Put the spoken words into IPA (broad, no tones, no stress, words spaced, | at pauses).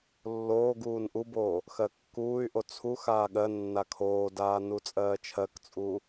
lːoːɡuːn ʔuboː | xɜkːuːy̯ʔo t͡sʰuxaː ɠɜ nːakʰoːdaː nut͡sʼɜːt͡ʃʰɜkt͡sʼuː